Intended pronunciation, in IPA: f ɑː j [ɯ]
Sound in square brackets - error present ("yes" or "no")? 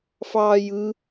no